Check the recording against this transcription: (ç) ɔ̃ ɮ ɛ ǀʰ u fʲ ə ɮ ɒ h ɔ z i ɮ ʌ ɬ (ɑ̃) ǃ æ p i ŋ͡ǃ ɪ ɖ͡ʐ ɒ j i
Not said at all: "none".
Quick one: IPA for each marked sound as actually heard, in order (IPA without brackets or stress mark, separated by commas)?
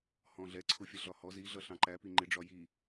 h, ɑ̃